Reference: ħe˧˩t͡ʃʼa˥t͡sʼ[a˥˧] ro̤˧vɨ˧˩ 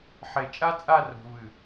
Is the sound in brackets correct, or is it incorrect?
correct